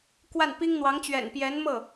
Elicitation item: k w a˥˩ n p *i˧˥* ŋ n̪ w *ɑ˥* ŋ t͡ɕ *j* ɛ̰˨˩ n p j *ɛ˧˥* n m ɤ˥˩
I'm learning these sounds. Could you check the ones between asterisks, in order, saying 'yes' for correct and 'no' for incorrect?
no, no, no, yes

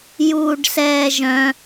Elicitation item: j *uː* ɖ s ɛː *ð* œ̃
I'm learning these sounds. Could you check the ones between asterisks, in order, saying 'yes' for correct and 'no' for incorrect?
yes, no

